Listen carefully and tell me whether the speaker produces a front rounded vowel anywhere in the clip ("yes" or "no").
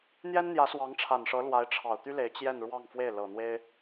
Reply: yes